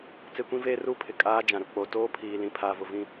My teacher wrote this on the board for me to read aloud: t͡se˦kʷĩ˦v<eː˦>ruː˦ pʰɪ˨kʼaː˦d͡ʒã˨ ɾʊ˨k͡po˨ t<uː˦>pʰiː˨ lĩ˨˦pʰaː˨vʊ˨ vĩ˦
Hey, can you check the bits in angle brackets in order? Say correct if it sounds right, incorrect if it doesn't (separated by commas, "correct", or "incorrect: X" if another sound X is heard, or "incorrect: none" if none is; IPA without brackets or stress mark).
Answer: correct, incorrect: oː˦